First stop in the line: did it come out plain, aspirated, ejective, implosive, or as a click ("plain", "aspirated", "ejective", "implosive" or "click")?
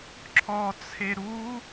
click